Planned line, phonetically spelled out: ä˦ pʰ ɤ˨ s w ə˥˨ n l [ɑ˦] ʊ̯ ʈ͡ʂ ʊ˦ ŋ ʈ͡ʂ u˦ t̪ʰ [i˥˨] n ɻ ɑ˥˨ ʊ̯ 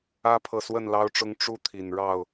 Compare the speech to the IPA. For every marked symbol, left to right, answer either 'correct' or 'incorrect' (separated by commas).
correct, incorrect